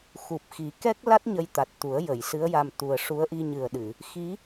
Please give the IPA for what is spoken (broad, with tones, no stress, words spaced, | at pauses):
xu˨˩p̚xi˨˩˦ kɛ˦˥k̚la˦˥t̚ ɲə˧jt̪a˨˩t̚t̪u˨˩˦ə̯ jə˨˩˨jsɨ˧˥ə̯ja˧m t̪u˨˩ə̯ ʂu˧˥ə̯ ʔi˧ɲɨ˨˩ə̯ɗɨ˨˩˨ | xi˧˥